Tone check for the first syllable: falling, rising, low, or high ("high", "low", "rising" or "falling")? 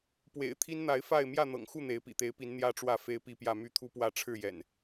low